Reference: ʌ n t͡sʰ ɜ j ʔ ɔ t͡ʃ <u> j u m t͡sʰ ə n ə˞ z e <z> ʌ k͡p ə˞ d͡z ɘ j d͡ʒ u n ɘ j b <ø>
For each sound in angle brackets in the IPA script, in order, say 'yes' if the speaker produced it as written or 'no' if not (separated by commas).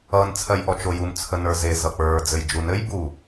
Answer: no, yes, no